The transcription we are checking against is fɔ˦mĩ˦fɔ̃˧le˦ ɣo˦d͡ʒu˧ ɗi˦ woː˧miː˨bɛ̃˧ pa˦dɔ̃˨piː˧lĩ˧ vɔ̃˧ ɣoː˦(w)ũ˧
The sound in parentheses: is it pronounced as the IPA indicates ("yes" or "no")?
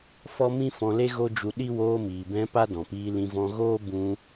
no